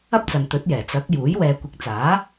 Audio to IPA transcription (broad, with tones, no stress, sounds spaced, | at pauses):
ɐ˥ p̚ t͡s ɐ˨ n t̪ ɵ˨˥ t̚ j ɛː˨˩ t͡s ɐ˨˥ k̚ j uː˨˥ j w ɛː˨ kʷ ɪ˨˥ k̚ t͡s aː˨˥